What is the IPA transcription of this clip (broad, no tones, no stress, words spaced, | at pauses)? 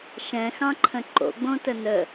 ʃɛ̃xɑ̃ǃʰə̃ ǃo̰ɡ͡bõtə nə